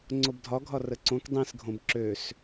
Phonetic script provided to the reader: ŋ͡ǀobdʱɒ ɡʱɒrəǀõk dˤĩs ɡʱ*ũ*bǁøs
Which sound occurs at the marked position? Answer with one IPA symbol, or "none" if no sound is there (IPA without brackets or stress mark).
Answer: õ